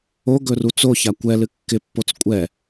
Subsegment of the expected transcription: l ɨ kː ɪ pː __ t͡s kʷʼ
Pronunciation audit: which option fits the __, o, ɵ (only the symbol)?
o